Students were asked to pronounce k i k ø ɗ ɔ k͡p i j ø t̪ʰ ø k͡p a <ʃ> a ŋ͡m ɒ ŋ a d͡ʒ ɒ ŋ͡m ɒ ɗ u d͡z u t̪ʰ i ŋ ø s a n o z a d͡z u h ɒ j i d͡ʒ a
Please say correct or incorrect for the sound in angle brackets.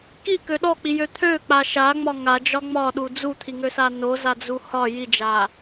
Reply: correct